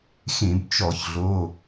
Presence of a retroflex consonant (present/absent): absent